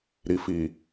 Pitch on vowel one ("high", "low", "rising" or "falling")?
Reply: low